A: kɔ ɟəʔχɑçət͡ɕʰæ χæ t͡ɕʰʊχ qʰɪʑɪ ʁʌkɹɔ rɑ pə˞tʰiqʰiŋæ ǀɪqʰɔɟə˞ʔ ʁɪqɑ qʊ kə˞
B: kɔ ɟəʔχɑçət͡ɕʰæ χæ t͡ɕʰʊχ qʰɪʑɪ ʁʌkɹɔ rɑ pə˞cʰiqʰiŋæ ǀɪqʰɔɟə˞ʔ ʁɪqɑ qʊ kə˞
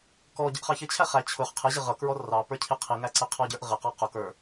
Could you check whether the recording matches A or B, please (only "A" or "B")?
B